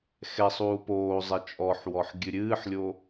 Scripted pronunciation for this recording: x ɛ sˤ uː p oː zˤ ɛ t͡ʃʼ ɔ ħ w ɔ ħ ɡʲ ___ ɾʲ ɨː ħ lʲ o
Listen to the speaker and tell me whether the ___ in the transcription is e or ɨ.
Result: ɨ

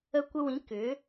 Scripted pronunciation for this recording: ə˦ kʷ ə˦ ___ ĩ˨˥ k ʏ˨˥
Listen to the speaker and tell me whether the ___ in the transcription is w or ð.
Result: w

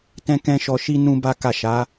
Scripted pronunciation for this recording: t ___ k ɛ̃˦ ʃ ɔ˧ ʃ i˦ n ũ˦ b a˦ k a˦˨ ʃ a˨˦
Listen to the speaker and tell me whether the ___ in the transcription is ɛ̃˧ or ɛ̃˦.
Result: ɛ̃˦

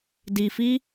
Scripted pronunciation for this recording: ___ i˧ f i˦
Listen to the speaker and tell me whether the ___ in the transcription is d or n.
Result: d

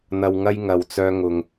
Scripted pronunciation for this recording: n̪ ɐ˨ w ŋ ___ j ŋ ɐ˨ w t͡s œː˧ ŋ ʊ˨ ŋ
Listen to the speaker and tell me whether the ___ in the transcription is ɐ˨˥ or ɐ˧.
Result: ɐ˧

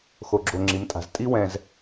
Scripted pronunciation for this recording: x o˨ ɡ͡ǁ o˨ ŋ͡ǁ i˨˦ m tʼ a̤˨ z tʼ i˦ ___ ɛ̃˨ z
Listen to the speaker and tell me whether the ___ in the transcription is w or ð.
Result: w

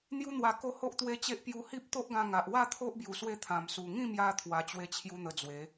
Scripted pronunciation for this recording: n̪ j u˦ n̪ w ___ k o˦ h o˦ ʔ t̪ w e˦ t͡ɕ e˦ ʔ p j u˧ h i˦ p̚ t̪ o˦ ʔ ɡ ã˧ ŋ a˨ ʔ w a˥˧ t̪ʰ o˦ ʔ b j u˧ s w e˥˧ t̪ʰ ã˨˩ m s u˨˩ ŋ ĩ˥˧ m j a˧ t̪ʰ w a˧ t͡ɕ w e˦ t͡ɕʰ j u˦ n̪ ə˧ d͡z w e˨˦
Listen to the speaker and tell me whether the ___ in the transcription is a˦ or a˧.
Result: a˧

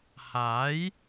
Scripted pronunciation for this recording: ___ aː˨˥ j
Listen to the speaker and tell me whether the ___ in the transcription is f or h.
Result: h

